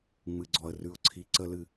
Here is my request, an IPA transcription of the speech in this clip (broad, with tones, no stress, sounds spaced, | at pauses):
ŋ͡m ɨ˩ ɡ͡ǀ ɔ˩ ə̯ r ʉ˩ ʊ̯ ǀʰ i˩ ǀ ə˧˩˧ l ɨ˩